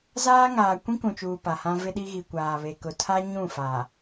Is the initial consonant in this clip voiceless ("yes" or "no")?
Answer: no